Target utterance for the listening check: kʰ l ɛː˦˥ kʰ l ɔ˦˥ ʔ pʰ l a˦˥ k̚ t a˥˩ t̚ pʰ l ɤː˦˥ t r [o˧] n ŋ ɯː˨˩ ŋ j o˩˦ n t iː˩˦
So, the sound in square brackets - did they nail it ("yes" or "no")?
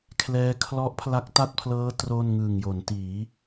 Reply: no